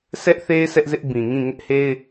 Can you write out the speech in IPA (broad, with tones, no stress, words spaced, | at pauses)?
sʰɛ˦ʔθe˦ɪ̯ sʰɛ˦ʔzɪ˦ʔbĩ˨ŋĩ˦˨ ŋɪ˦ʔhe˦ɪ̯